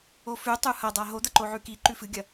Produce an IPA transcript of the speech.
o f ʉ tˤ u h ɐ dˤ a ɦ o d̪ ɐ ǃ o ʕ ʉ k i ǃ ʉ f ɨ ɡʲ ɐ

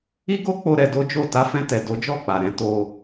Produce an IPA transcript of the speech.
i˦ ɡ o˦ k͡p o˦ ɾ ɛ˧ d o˦ d͡ʒ o˦˨ t a˧ f ɛ̃˧ t ɛ˨ d o˨˦ d͡ʒ ɔ˦˨ k͡p a˨ ɾ ɛ̃˨˦ t o˧

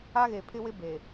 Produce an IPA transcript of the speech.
a˦ ɣ e˨ pʰ ɪ˦ w ɪ˦ b e˨

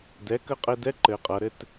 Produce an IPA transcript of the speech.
d ɛ˩˥ k ə˧˥ qʼ ɘ˧ d ɛ˧˥ ǃ ɘ˧ qʼ ʌ˩˥ ɾ ɘ˥˧ t

